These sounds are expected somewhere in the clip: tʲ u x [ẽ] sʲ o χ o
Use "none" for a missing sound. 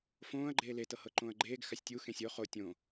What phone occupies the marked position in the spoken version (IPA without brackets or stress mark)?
ẽ